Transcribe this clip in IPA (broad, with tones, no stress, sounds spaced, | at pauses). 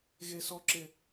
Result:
ɣ e˦ s ɔ˦ ǁ ɪ˦